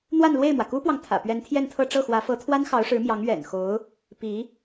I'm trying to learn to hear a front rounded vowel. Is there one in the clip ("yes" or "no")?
no